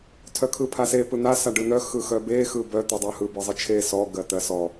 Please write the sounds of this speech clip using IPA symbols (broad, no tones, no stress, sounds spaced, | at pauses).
tʰ œ kʰ ɯ pʰ a s e p ɯ n̪ a s a ɖ ɯ n̪ œ x ɯ x œ b e x ɯ b œ t̪ ɯ dˤ œ h ɯ b ɯ zˤ ɯ t͡ʃʰ e s ɔ ɡ ɜ t̪ ɜ s ɔ